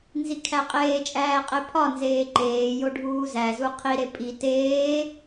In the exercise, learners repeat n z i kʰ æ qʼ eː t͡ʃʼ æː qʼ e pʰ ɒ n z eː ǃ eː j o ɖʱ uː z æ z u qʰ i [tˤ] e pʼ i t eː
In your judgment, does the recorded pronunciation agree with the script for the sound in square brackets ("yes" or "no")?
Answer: no